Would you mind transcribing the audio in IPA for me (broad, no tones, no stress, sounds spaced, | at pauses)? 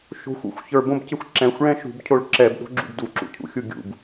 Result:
ʃ o̤ xʷ ṵ xʷ ç ə˞ b õ b c ɪ xʷ ǁ ɛ̃ xʷ ɭ ɛ̃ ʃ ṳ b cʰ o ɭ ǁ ɛ b ɗ o̤ ɡ͡ǁ ṵ b d u ǁ ṵ cʰ ṵ xʲ u ɡʲ ṵ b